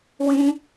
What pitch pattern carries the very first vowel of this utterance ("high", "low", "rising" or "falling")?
high